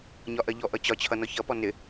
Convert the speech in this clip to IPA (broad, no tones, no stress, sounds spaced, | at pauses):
ɲ ɒ ʔ ɜ ʎ ɔ ʔ ʌ t͡ɕ ɒ t͡ɕʰ ʌ n ɔ ç ʌ p ɔ n ɪ